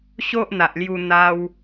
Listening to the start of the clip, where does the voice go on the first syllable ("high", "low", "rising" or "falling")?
high